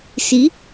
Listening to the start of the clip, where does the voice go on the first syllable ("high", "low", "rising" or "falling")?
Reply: rising